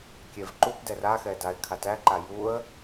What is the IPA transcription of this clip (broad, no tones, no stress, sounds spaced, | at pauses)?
kʲ ɛ v ǃ u p d ɛ r a x ɛ d a ɪ̯ kʰ a t æ ǃ a j u ə̯